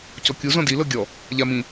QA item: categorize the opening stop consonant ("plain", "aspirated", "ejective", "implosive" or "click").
plain